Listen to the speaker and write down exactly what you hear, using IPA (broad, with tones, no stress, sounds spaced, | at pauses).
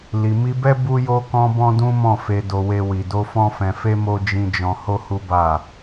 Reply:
l i˨ m i˧ b ɛ˦ b u˧ j o˧ k ɔ̃˧ b ɔ̃˦ d ũ˦ m ɔ̃˦˨ f e˧ d o˧ w e˧ w i˨ d o˧ f ɔ̃˧ f ɛ̃˨ f e˧ m o˧ d͡ʒ ĩ˧ d͡ʒ ɔ̃˧ h o˦ h u˦ b a˦˨